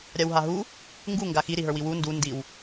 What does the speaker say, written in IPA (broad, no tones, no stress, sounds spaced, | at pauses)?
ɾʲ a w ɦ a ɦ u | ŋ ɡ u ŋ ɡ a x i ɾ i ɦ ə˞ w i w u n d u n d i w